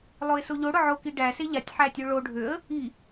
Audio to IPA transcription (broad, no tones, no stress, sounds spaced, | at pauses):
lˠ o ɪ̯ s o ʎ o ɽ ʊ ʕ o k i ɖ æ s e ʎ a tʲ ħ æ tʲ o ɭ o ɖʱ ø ə̯ | i